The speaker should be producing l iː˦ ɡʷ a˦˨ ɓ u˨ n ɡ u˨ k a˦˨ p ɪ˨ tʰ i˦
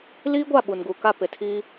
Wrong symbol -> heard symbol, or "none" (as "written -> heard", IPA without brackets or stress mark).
i˦ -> iː˦